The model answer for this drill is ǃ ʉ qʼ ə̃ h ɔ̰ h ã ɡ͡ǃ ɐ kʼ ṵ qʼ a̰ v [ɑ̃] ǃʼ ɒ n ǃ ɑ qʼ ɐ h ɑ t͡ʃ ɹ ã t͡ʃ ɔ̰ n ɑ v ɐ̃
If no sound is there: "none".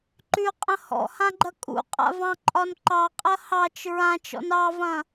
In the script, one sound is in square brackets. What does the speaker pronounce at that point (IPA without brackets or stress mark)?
ɑ̃